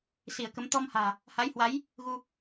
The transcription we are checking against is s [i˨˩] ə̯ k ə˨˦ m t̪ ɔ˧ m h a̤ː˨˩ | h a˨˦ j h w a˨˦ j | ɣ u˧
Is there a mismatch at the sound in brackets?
yes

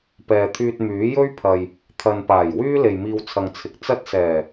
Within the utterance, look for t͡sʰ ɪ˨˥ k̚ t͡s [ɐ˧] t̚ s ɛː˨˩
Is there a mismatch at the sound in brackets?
yes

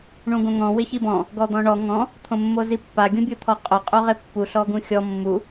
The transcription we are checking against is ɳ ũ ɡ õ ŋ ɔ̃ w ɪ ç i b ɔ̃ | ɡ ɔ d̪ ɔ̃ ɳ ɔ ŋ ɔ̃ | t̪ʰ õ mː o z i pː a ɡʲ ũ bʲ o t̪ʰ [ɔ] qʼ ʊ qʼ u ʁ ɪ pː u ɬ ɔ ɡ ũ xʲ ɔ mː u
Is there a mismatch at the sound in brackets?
no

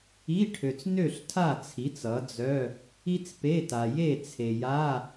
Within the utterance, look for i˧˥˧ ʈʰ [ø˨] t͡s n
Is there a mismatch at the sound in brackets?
no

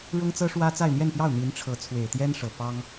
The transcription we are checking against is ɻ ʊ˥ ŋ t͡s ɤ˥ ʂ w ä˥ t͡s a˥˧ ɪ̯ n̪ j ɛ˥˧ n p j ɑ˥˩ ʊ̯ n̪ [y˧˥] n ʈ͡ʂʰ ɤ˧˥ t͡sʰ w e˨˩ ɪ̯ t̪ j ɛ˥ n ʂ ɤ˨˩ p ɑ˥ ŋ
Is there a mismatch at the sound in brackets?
yes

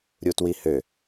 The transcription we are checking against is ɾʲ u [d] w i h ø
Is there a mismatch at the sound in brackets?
yes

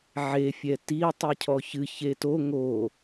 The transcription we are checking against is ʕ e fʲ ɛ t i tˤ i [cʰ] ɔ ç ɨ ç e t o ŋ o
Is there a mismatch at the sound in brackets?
no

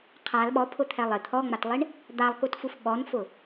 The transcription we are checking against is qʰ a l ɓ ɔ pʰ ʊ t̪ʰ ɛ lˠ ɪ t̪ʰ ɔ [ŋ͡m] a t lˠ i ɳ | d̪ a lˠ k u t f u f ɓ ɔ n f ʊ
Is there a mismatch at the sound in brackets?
no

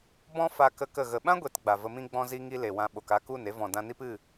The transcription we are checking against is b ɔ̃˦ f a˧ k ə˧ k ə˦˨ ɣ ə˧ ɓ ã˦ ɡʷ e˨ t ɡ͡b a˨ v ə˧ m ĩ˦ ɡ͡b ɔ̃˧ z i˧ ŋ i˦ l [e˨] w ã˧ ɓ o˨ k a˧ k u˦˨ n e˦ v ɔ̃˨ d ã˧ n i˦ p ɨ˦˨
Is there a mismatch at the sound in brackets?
no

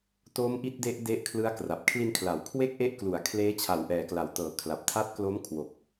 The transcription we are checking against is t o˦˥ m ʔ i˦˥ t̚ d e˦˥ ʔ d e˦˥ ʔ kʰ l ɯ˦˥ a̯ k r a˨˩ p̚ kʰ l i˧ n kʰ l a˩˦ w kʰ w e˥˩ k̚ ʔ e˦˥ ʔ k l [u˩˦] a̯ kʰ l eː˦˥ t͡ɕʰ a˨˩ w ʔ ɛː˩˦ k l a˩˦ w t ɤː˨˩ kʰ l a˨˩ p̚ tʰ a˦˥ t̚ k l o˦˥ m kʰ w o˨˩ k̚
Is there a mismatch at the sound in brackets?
no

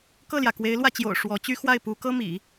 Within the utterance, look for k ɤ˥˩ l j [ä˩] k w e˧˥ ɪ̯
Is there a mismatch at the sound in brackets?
no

